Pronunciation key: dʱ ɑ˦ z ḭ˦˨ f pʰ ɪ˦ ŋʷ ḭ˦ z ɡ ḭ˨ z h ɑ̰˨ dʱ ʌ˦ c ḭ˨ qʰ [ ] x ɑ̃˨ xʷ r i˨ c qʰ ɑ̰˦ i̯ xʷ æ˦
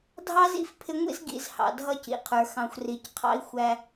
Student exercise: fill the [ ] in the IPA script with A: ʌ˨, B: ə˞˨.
B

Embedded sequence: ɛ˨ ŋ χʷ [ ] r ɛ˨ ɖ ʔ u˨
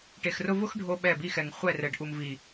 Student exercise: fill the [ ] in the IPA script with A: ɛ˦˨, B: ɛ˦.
A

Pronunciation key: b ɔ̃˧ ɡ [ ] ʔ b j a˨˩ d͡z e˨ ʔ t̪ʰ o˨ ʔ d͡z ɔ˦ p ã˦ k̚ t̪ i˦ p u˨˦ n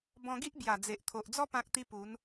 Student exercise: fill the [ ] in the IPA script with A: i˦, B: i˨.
A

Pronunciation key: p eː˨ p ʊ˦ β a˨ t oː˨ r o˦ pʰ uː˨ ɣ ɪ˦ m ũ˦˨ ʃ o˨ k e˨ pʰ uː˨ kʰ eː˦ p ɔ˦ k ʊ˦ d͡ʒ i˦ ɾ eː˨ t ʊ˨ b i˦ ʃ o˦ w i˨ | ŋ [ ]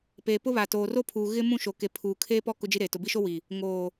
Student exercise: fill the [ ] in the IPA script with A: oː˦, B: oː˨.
B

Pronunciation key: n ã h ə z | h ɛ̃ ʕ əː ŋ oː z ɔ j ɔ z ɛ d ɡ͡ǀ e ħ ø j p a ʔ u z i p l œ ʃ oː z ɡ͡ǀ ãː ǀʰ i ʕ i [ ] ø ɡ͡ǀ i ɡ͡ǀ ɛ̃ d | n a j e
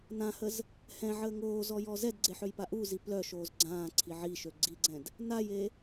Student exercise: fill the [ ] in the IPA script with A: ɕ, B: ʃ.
B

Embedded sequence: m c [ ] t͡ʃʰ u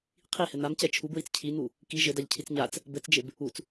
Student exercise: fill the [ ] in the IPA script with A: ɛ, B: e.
A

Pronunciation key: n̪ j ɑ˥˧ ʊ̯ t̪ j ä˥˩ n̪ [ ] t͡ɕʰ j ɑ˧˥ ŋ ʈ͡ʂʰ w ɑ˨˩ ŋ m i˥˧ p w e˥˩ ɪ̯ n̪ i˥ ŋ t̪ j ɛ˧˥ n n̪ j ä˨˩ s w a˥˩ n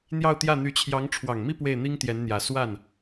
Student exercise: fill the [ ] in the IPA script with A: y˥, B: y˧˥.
B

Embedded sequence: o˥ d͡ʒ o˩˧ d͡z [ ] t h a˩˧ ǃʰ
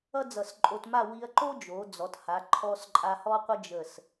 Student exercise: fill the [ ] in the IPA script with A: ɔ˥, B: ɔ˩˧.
B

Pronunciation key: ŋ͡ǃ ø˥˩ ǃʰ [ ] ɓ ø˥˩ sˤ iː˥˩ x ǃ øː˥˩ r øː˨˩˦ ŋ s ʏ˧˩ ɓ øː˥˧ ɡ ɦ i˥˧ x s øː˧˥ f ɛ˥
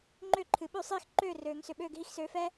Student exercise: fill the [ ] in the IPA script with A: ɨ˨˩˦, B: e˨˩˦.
A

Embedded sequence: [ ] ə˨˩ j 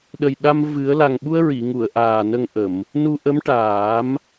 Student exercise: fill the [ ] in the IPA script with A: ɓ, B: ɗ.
B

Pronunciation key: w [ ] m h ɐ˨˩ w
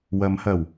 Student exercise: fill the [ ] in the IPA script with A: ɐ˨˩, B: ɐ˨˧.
B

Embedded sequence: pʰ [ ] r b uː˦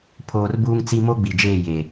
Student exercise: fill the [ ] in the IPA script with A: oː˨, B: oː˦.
B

